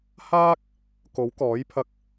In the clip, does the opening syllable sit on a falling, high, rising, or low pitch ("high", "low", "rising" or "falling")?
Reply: high